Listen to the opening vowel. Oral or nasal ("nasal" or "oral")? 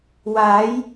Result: oral